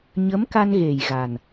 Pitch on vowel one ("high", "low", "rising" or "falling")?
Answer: rising